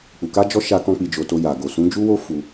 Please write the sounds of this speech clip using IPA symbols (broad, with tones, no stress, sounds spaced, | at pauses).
k͡p u˨ k a˧ d͡ʒ ɔ˧ ʃ a˧ k ɔ̃˧ k͡p i˨ d͡ʒ o˨ t o˧ j a˨ ɡ o˨ s ũ˨˦ d͡ʒ u˦ w o˦ f u˧